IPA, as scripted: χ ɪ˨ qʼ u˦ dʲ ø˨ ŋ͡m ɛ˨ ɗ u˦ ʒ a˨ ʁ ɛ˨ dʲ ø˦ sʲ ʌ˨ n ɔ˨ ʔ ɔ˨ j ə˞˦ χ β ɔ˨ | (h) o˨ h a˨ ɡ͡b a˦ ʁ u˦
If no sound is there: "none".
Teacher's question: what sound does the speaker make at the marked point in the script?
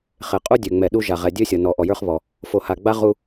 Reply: f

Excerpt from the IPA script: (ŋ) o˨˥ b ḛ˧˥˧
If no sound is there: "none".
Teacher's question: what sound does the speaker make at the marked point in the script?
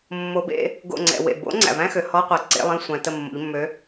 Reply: mː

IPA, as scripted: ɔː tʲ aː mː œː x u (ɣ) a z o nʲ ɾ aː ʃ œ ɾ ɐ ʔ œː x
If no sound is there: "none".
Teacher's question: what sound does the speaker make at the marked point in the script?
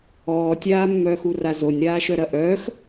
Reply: r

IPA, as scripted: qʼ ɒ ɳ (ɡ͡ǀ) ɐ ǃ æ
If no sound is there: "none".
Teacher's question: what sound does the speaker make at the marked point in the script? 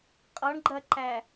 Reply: ɡ͡ǃ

